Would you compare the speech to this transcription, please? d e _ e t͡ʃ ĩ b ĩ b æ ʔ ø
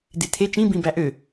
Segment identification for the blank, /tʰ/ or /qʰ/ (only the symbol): tʰ